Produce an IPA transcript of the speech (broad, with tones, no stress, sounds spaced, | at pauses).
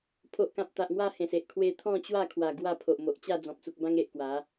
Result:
pʰ o˨ ʔ k ã˨ p̚ t̪ a˨ ʔ ŋ w a˥˧ h ẽ˨˩ s e˨ ʔ kʰ w e˧ t̪ʰ ɔ̃˥˧ t͡ɕ w a˥˧ kʰ w a˨˩ ɡ w a˥˧ pʰ o˨ ʔ m o˨ ʔ t͡ɕ a˥˧ d͡z ɔ̃˨ p̚ t͡s u˨ k̚ b ã˦ ŋ e˨ ʔ k w a˨˦